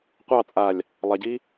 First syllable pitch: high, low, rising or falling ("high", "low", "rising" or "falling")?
falling